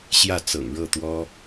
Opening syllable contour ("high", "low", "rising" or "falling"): falling